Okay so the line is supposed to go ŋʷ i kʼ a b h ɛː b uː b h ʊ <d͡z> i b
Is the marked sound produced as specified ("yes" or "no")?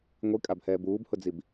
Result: yes